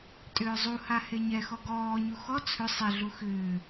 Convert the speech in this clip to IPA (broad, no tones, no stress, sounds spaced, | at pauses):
tʼ ʏː zˤ u h a h e ɲ ɛ x ɔ ɡ ɔː ɲ u x ɔ t͡sʰ ʏ sˤ e ɮ u x ʏː